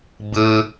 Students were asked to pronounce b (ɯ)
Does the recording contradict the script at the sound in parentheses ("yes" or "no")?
no